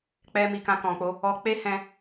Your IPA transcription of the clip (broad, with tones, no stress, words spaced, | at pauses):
k͡pɛ˦mi˧ kã˧kɔ̃˨k͡po˧ | ɔ˧k͡pe˦ hɛ̃˧